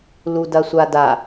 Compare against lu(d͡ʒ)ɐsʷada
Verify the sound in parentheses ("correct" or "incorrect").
incorrect